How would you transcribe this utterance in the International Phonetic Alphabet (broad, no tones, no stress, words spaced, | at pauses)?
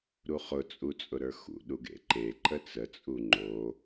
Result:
ɾuχʊ t͡sʼut͡sʼʊɾə˞xṵ ɗuɡḛǃe ǃət͡sə t͡sʼuŋ͡ǃo